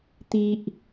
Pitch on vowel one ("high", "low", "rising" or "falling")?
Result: high